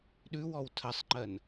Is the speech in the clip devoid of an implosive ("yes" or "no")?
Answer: no